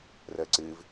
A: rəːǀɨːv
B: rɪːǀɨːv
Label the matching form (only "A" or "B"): A